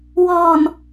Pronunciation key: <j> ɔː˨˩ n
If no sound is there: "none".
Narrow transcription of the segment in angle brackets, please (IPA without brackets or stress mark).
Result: w